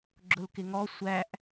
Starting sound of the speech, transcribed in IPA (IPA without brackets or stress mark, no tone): ɡ͡ǁ